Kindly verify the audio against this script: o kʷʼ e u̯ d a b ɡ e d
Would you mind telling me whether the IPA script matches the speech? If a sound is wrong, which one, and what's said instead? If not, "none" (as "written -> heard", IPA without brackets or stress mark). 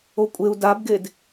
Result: none